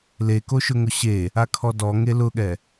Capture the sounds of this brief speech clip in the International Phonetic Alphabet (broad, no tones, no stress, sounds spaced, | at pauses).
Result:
l e k o ʃ ʊ ŋ ʊ ɕ e | a kʰ ɔ d ɔ ŋ e l ʊ ɠ ɛ